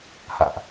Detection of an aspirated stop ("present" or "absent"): absent